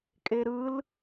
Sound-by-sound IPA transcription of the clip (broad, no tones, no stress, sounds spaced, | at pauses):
kʼ e ɾ ɯ l